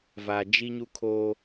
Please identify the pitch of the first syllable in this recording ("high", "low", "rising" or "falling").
low